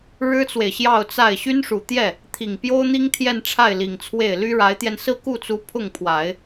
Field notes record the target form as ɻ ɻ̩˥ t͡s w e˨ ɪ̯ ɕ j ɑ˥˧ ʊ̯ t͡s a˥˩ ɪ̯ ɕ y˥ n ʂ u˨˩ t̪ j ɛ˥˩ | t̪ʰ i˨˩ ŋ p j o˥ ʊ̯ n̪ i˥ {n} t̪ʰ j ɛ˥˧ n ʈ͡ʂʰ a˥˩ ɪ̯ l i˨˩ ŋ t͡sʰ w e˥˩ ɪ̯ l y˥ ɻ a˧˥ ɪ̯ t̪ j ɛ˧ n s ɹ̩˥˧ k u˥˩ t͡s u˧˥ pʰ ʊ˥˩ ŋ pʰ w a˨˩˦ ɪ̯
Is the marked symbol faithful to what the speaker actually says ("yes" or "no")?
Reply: no